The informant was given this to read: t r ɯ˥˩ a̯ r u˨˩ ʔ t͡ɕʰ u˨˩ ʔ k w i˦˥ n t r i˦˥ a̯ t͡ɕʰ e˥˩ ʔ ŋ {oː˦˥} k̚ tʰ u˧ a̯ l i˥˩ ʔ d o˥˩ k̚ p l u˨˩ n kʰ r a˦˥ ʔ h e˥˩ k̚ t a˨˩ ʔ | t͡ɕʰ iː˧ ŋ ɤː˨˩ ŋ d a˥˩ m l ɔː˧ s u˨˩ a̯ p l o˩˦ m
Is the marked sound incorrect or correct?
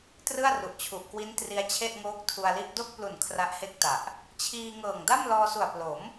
correct